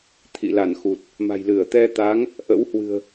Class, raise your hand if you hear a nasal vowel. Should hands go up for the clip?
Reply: no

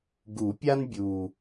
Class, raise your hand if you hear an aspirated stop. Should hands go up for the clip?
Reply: no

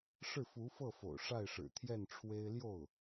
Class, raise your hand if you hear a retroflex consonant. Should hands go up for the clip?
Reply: yes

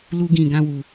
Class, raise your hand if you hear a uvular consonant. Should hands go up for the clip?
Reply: no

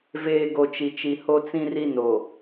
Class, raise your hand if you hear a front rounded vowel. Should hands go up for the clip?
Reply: no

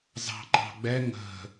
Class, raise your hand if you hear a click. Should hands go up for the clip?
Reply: yes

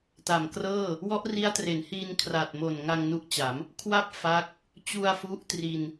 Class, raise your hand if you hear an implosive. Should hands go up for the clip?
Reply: no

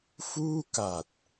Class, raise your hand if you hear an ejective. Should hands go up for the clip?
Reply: no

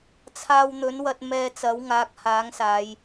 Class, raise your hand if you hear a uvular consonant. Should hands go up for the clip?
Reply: no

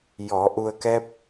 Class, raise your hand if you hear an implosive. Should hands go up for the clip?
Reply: no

